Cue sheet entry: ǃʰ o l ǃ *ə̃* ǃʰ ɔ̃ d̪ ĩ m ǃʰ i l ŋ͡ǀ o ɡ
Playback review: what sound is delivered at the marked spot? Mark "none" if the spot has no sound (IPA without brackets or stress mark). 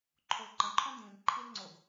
ə̃